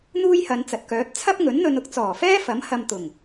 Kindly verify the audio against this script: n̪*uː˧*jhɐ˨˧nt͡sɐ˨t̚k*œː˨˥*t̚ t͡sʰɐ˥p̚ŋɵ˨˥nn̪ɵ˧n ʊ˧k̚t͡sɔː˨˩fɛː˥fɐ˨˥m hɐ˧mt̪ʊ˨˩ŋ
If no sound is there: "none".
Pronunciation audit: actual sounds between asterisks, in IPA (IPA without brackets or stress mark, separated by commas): uː˥, œː˨˥